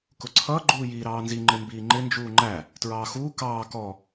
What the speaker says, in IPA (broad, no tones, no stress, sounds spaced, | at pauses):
k ʊ ǀʰ ʌː ɡ͡ǃ uː j iː ɾ ɑː n z i ŋ͡ǃ ɪ m b iː ŋ͡ǃ ɪ n d͡ʒ uː ŋ͡ǃ æ | t ɹ ɑː x uː k ɑː k ɔ